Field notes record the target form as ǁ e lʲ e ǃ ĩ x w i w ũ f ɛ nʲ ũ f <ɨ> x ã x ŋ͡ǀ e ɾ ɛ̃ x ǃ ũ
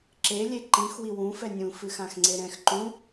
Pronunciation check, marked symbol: correct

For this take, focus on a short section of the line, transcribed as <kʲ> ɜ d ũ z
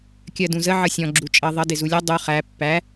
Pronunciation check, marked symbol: correct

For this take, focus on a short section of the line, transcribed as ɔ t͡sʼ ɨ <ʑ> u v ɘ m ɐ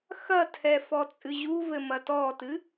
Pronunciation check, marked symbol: correct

